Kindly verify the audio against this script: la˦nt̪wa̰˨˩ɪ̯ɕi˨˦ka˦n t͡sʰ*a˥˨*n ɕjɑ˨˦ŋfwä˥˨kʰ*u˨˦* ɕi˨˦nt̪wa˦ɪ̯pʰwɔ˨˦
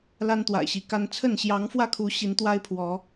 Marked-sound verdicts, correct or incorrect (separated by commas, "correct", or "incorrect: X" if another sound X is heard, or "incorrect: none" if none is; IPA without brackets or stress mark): incorrect: ə˥˨, correct